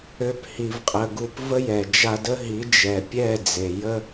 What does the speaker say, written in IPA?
ø˦phi˧vqʼə˧ ɡu˧pvə˦jɛ˨ d͡ʒa˧ də˦ɦi˨˦ d͡ʒɛ˨pʲɛ˦˨ d͡ze˨jə˦

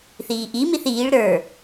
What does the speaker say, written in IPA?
θiːʔimiθ iːɭ ɾə˞

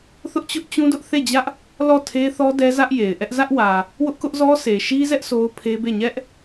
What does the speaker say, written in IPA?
θʊ˦ʔt͡ɕʊ˦ʔt͡ɕũ˦dʊ˦ʔ θe˦˨d͡ʑä˦ʔ | lɔ˦˨tʰe˦θɔ˦ dɛ˦zä˦ʔ je˨ɪ̯ʔɛ˦ʔ zä˦ʔwä˨ | wʊ˦ʔkʊ˦ʔzɔ˦ sʰe˨ʃi˦zɛ˦ʔ sʰo˦ʊ̯pʰe˦be˦˨ ɲɛ˦ʔ

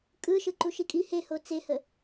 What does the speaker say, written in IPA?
kʼɯʃɯ ǃuʃikʼi heho t͡sehə

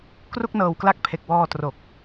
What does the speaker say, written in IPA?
kru˥˩k̚nɤː˨˩wkla˦˥k̚ pʰe˨˩k̚wɔː˧tro˨˩k̚

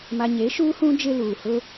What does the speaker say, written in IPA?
ma˨ɲe˨˦ʃuː˦hũ˦ d͡ʒɪ˦luː˨ hʊ˦

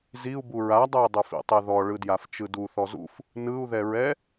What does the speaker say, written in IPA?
ziu̯bu ɹadˤɛi̯dˤufḭ tˤeðɔɭɯdjaf t͡ʃɯdu θɔzṵf | nɯu̯ðɛɹɛ

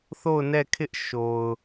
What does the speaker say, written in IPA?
θo˦˨ʊ̯nɛ˦˨ kʰɪ˦ʔ ʃo˨ʊ̯

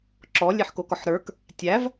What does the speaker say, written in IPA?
ǁɔ lʲeħkokɔħɾə˞k | tʲæv

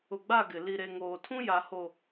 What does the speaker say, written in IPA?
ʊ˨ɡ͡ba˦˨ ɡɪ˨ li˨ ɾe˨ŋoː˨tʰũ˦ja˨ ho˨

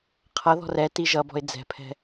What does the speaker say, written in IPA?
qʰʌðɔ̤r ɛti ʒʌbɔ̤ɪ̯ d͡zɛ̤pʰɛ̤

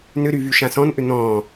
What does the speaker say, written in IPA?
nʏɾy vyʃãsɔ̃nʔʏ n̪ɔ̃ː

